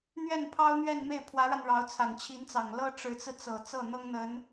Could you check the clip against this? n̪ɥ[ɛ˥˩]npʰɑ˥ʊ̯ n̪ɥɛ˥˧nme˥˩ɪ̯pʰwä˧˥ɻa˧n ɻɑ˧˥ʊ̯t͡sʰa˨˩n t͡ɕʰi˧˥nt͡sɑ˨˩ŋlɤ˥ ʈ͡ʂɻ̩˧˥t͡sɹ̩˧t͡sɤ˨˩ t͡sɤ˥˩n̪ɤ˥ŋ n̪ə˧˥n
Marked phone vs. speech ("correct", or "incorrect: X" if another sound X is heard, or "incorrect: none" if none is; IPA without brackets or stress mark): correct